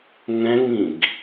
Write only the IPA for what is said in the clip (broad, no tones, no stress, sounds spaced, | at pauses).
ŋ ɛ̃ ŋ ĩ ɡ